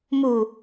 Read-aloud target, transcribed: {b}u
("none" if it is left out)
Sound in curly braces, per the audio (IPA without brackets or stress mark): m